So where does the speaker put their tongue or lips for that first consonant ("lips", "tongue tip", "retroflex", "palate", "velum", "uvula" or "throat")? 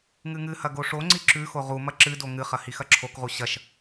velum